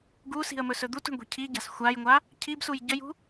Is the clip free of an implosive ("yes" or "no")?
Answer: yes